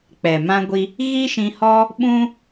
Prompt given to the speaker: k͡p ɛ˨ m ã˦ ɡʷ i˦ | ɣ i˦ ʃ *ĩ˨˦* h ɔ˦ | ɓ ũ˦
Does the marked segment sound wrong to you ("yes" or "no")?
yes